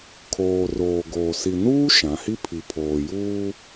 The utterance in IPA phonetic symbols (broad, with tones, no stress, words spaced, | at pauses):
kʰoː˨roː˨ɡoː˨ si˨nuː˦ ʃã˨˦ hi˦pʰi˨pʰoː˨juː˦